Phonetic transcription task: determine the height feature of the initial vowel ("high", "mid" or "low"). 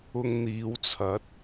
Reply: high